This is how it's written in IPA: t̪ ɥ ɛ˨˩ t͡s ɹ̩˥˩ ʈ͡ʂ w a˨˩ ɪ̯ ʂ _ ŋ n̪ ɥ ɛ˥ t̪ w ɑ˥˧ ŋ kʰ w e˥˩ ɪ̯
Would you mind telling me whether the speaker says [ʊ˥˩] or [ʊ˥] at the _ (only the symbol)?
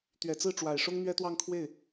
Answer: ʊ˥